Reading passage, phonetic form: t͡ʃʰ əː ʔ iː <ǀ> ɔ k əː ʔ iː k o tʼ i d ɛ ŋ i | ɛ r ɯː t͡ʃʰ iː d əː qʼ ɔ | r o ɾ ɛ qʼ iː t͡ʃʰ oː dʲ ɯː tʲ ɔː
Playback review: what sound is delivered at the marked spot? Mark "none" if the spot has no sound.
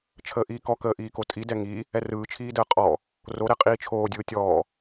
k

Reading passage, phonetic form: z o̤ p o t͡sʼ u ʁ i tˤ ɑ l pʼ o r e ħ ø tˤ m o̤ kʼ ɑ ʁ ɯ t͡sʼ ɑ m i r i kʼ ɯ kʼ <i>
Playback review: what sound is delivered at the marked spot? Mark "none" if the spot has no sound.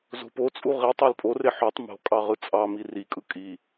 i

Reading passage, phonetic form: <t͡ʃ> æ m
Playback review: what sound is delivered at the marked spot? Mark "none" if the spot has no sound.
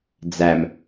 d͡z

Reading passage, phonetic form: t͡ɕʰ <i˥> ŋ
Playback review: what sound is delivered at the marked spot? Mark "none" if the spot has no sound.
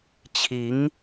i˧˥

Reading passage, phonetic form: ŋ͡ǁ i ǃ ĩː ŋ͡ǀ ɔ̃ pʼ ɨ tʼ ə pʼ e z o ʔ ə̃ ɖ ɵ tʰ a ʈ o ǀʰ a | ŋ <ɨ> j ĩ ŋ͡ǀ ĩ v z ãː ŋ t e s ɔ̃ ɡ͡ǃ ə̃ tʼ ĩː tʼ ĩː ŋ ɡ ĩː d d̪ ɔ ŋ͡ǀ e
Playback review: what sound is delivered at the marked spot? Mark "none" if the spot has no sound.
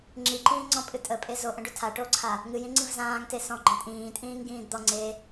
ɨ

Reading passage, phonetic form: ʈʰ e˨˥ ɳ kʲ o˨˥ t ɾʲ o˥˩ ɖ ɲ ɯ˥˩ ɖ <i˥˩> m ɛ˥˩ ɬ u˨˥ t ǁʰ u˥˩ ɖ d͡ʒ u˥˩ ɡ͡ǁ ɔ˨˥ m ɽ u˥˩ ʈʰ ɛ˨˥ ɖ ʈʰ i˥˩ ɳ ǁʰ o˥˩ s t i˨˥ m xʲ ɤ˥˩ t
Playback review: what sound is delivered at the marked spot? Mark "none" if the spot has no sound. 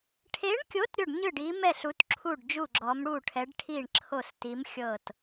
i˨˥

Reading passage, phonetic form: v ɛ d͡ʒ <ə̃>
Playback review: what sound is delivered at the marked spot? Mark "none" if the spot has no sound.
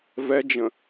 ə̃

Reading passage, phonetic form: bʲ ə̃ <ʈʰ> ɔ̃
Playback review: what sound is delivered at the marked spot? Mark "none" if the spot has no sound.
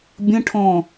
ʈʰ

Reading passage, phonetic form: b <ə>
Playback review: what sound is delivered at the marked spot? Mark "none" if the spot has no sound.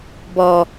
ɔ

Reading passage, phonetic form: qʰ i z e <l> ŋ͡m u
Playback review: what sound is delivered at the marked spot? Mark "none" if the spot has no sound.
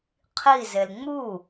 l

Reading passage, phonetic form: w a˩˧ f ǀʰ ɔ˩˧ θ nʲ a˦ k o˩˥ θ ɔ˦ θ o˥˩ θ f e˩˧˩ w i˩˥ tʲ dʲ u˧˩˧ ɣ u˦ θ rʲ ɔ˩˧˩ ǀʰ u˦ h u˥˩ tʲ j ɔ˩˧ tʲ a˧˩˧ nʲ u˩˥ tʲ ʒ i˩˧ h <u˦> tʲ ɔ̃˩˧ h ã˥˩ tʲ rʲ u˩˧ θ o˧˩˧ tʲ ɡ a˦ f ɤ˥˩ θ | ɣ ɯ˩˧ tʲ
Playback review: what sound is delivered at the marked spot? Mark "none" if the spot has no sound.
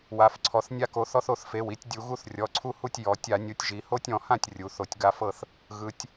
o˦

